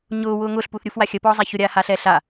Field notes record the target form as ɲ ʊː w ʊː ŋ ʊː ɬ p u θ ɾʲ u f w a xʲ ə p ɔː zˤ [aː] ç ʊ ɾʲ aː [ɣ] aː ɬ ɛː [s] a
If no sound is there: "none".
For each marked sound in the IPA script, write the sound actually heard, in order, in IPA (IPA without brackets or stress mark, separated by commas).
a, h, ɬ